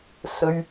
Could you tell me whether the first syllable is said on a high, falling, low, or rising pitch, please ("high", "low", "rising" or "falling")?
high